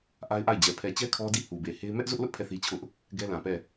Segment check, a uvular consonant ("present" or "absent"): absent